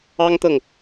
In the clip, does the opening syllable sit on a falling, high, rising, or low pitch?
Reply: high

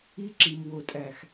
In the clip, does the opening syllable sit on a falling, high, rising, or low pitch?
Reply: high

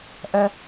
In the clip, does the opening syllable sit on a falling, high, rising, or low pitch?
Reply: high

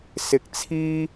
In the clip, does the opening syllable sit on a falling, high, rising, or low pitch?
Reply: rising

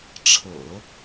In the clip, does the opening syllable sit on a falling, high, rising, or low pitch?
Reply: low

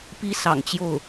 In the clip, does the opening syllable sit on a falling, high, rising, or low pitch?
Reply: high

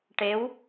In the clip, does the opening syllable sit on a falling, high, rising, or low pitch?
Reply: rising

